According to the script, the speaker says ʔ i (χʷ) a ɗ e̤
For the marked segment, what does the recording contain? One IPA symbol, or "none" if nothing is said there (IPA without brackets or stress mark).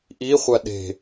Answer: χʷ